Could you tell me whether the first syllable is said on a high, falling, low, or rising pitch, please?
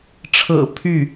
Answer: low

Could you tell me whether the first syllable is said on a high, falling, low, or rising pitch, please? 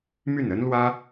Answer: falling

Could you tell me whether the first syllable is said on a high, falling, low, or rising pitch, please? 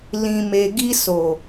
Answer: low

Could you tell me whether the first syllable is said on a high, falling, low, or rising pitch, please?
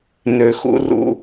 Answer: low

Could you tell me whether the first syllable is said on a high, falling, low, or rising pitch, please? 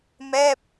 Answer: falling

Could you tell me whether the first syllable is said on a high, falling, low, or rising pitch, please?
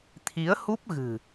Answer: rising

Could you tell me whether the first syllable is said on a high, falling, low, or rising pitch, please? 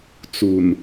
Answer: low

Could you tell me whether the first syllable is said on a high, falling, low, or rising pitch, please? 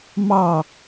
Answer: falling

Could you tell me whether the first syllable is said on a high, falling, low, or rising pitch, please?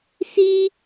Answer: high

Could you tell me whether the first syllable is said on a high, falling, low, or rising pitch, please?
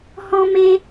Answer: high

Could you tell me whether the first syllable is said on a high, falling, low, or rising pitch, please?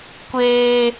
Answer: high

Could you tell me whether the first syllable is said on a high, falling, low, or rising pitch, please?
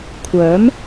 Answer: rising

